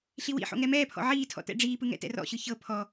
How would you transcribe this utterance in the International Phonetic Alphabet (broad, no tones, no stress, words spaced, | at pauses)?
ɬiwḭħo̰ ŋɛmɛːpʰɔ̰ ʕiːtʰɔ̰ tɛ̰ɖ͡ʐiːpɯ ŋɛ̰tɛ̰rɔ̰ɕɯ çɤ pʰɔ